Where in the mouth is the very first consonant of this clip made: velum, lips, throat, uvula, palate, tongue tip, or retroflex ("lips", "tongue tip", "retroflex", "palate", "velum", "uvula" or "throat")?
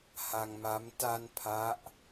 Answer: throat